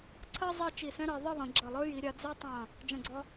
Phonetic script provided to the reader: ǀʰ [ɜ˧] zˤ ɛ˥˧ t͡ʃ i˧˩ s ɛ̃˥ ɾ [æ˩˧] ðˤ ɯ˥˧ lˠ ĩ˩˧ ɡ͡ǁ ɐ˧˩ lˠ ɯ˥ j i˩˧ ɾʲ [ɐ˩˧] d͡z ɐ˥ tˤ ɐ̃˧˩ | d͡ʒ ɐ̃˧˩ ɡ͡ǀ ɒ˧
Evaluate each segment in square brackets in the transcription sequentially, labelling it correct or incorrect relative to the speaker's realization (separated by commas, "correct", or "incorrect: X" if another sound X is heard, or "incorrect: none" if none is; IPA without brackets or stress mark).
incorrect: ɜ˥, incorrect: ɜ˩˧, incorrect: a˩˧